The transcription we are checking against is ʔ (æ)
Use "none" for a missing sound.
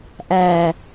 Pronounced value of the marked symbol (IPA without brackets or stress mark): æ